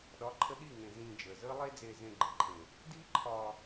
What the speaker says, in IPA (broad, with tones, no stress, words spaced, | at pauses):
ɗɒ˨˦ǃʰə˧ɗi˦˨ ŋẽ˧ zĩː˧d͡ʒəː˨zəː˦lˠe˦ d͡zeː˧zẽ˧ɡ͡ǃə˨ǃʰẽ˨ | diː˦ǃʰɒː˧